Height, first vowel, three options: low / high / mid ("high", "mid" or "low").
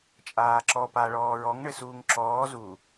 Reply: low